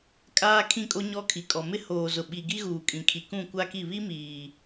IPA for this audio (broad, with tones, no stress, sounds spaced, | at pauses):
kʼ aː˦ kʰ ĩ˦ kʼ o˦ ɲ ɔ˦ kʰ i˨ kʼ ɔ˨ m ɪ˦ h oː˨ z ʊ˨ ɓ i˨ ɡ i˦ ɣ uː˨ kʼ ĩ˨ kʰ i˨ k ũ˦˨ kʷ a˦ k i˦˨ β i˦ m iː˨